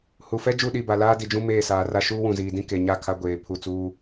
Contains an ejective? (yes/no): no